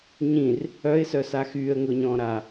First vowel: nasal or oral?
nasal